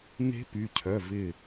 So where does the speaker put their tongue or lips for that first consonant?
tongue tip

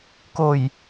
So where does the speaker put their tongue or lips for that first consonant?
velum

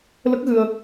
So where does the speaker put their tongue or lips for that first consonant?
tongue tip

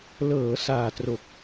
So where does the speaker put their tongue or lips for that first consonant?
tongue tip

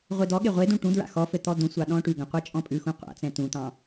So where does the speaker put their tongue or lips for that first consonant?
uvula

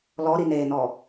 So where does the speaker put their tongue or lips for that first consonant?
tongue tip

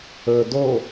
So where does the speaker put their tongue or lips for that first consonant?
tongue tip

